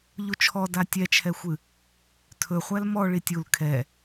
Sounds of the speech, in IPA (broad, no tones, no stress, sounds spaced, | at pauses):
ʎ u t͡ʃʰ ɔ d a tʲ ɛ t͡ʃʰ ɛ xʷ ɨ | tʰ ɵ χʷ æ l m ɔ ɭ i tʲ u l kʰ ɛ